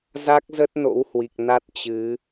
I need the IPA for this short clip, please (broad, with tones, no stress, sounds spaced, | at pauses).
z a˦˥ k̚ z ə˦˥ t̚ n o̰˧˥ w h w i˨˩ k̚ n a˦˥ t̚ t͡ɕ ɨ˨˦